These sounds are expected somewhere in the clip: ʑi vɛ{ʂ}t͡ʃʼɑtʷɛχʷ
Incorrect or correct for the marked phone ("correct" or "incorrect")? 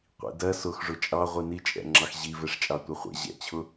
correct